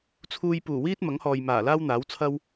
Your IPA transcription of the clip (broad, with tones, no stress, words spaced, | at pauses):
t͡sʰuː˧jpuː˨˩ wiː˥t̚mɐ˨˥ŋhɔː˨j maː˨˩laː˥wn̪aː˨˥wt͡sʰɐ˥w